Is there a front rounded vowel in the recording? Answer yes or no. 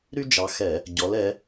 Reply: yes